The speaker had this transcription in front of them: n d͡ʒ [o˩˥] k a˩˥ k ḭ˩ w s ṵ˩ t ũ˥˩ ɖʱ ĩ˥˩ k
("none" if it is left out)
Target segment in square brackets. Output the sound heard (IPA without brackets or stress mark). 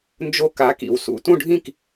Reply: o˧